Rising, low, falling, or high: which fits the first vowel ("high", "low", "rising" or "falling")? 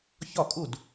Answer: falling